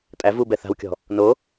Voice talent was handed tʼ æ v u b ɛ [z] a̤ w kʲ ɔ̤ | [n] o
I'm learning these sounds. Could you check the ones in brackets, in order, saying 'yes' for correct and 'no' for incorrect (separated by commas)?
no, yes